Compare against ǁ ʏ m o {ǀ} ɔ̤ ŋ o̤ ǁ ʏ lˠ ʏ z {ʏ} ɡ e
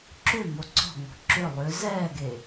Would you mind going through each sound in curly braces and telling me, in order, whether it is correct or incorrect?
correct, incorrect: ɛ

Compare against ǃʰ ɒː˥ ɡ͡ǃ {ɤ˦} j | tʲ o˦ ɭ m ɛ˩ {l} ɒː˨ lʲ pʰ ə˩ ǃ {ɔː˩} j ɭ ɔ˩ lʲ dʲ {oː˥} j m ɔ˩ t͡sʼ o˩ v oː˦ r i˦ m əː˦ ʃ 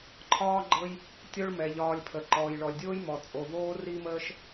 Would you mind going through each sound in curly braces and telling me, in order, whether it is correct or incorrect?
correct, incorrect: ʎ, correct, correct

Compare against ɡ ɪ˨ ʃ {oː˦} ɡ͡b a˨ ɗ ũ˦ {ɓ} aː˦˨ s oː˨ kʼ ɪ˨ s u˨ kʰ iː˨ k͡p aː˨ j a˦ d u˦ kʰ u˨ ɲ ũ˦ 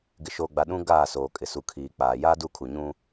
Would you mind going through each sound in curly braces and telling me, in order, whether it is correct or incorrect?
incorrect: oː˨, incorrect: ɡ

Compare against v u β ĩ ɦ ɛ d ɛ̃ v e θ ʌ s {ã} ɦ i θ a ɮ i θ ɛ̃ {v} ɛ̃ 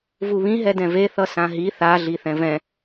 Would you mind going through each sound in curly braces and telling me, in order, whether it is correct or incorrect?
correct, correct

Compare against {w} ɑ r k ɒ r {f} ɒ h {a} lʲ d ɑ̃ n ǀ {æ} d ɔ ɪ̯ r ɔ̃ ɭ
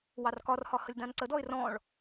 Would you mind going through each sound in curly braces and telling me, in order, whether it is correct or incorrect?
correct, incorrect: h, incorrect: ə, incorrect: ə

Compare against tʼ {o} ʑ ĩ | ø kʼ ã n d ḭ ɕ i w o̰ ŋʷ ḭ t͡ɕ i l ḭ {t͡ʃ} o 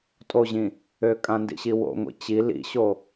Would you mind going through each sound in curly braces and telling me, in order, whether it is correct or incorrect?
correct, incorrect: ɕ

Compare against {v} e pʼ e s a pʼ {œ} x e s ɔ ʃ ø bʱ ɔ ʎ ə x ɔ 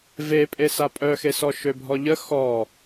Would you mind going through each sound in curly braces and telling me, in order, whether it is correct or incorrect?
correct, correct

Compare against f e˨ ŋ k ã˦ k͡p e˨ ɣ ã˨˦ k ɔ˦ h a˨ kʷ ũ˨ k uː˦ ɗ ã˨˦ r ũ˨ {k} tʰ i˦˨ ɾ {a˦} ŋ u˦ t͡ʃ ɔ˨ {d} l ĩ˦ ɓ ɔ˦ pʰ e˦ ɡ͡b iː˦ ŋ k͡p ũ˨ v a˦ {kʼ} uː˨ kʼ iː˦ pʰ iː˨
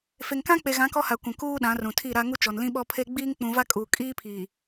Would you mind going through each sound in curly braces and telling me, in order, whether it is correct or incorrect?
incorrect: none, correct, incorrect: n, correct

